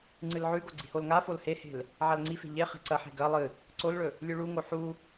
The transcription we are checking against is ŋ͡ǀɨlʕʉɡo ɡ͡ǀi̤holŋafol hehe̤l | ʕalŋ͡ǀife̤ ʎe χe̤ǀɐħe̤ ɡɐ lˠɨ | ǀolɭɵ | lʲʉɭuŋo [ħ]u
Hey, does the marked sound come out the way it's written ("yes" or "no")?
yes